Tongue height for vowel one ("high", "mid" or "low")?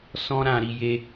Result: mid